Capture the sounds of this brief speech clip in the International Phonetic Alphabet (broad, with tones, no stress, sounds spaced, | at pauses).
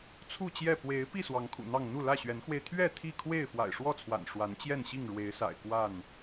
t͡sʰ u˥˨ t͡ɕ j ɛ˥˨ p w e˨˦ ɪ̯ p i˥˨ s w ɑ˨˦ ŋ kʰ ṵ˨˩ n̪ ɑ˥˨ ŋ n̪ u˥˨ l ä˥˨ ɕ ɥ ɛ˨˦ n x w e˧ ɪ̯ t̪ʰ ɥ ɛ˥˨ t̪ʰ i˥˨ kʰ w e˥˨ ɪ̯ f w a̰˨˩ ɪ̯ ʂ w ɔ˥˨ t͡sʰ w a̰˨˩ n ʂ w a˨˦ n t͡ɕ j ɛ˥˨ n ɕ i˥˨ ŋ ɻ w e˨˦ ɪ̯ s a̰˨˩ ɪ̯ k w a˥˨ n